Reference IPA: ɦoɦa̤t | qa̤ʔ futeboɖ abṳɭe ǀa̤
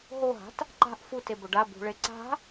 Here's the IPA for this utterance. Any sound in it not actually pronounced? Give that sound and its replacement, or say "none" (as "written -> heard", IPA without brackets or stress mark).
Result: q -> ǃ